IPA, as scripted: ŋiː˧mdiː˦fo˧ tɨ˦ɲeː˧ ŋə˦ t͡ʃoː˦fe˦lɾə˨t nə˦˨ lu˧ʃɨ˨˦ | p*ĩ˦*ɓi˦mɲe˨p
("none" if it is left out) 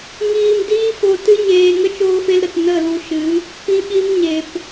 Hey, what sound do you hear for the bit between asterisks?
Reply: ĩ˦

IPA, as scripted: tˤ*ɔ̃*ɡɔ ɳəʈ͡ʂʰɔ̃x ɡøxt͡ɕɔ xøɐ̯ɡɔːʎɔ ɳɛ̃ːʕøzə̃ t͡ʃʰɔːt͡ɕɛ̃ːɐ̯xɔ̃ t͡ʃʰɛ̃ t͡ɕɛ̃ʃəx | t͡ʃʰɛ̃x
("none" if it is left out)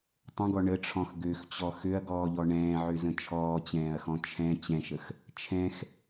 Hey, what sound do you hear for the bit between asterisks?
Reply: ə̃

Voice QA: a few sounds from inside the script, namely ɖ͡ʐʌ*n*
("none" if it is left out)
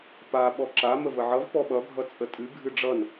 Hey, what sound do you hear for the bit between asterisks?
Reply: n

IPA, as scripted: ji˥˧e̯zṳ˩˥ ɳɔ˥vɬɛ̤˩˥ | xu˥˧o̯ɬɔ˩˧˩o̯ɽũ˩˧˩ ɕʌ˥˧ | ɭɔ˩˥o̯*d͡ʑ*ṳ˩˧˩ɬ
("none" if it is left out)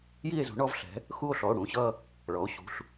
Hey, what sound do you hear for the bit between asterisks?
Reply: ɕ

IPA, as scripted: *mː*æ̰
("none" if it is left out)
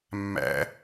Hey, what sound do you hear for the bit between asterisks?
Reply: mː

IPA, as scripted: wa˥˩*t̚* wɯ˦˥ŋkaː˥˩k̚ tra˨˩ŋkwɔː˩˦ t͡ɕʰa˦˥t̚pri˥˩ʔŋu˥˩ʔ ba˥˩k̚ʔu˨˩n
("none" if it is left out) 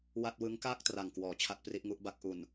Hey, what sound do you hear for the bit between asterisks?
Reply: t̚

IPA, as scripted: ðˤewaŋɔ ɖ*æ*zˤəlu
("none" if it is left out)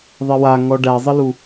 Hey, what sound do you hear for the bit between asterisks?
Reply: æ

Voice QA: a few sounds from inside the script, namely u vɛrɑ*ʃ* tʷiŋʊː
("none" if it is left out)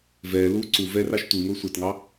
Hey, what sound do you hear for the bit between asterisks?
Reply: ʃ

